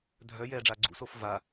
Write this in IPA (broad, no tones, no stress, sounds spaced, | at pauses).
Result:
dʱ œ j ɛː ɖ͡ʐ a ɡ͡ǀ ṵ s o f v a